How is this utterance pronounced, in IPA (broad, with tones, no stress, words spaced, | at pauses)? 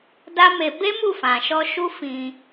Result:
da˦me˧ be˦mu˦˨fã˨ʃɔ˧ ʃu˦ fĩ˧